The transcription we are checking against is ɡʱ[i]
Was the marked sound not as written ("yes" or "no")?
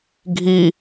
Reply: no